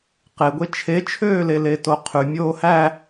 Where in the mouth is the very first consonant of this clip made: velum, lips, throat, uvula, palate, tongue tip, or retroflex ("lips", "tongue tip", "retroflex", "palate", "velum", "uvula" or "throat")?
uvula